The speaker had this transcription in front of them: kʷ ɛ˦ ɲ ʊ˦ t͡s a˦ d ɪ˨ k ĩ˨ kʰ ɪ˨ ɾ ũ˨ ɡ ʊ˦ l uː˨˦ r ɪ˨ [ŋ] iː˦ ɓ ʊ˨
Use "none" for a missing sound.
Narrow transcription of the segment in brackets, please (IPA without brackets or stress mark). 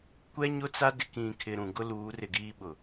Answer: ɡ